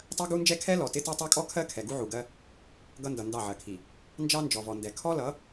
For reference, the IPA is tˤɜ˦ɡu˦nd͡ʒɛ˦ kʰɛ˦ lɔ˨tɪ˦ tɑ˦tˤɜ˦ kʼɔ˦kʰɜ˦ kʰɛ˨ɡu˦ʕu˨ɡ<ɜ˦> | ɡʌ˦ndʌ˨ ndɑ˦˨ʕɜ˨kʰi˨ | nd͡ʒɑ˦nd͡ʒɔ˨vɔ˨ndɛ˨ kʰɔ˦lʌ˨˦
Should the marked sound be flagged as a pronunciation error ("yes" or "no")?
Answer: no